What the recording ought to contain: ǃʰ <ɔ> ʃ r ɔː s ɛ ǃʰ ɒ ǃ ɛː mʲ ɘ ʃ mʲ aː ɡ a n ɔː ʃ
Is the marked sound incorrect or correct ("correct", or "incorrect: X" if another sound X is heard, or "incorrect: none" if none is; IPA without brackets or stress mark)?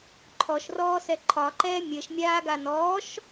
correct